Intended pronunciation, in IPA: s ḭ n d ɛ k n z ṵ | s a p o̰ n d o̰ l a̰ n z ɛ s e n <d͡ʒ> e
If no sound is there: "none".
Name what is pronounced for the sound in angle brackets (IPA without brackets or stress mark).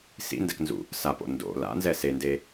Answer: d